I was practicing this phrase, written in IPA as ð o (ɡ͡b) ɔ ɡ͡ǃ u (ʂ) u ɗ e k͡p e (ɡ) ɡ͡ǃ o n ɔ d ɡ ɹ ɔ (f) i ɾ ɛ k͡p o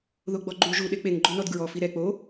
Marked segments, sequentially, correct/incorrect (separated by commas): correct, incorrect, incorrect, correct